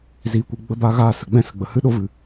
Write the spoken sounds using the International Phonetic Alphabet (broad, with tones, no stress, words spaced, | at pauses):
ziː˨kʷɨ˨ɡ͡bə˧ba˧ ɣa˦˨sə˨ɡ͡bɛ̃˦ sə˨ɡ͡bə˨hɨ˦ɗo˦ vɨ˨